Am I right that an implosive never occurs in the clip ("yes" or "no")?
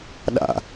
no